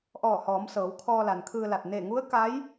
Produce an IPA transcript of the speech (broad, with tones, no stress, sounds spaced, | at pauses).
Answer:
ʔ ɔː˧˩ h ɔː˩˧ m s ɤː˩˧ w kʰ ɔː˧ l a˩ n kʰ ɯː˧ l a˧˩ t̚ n e˧˩ ŋ u˧˥ ə̯ k a˧˥ j